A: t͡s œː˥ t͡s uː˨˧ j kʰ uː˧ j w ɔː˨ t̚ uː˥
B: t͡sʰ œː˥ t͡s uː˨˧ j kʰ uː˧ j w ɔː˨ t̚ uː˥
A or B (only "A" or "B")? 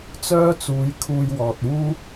A